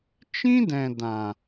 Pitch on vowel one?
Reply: high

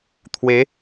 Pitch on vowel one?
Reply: rising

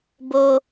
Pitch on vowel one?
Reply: high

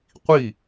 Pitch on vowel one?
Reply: falling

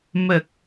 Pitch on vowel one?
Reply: low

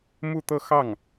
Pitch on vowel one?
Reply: falling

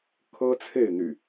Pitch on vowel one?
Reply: high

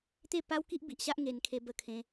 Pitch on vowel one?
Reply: falling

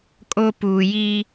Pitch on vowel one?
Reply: high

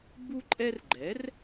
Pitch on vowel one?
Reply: high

